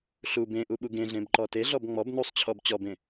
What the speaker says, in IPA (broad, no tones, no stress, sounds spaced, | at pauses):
ɬ u b ẽ ʔ u ɓ u ɡ ẽ ɮ ẽ b ǃ ɔ t e ɮ ɔ b ŋ͡m ɔ b n u sˤ t͡ɕʰ ɔ b t͡ɕ ɔ b ẽ